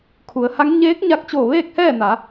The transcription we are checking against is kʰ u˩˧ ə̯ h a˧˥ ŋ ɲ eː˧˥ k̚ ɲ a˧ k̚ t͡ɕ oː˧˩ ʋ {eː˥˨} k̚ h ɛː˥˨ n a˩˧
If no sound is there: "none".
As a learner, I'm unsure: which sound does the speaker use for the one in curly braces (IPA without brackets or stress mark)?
eː˥˨